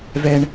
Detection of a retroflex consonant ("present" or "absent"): present